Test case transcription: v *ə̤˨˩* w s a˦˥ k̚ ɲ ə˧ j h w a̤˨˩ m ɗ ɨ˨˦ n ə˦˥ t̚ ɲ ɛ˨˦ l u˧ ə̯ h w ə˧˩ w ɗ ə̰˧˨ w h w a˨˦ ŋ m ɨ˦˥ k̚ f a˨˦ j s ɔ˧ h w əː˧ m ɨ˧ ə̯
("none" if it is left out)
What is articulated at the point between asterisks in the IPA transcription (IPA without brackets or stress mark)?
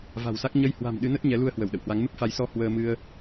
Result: a̤˨˩